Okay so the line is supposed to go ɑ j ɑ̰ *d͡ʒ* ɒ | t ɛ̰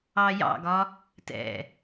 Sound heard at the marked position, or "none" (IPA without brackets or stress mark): ɡ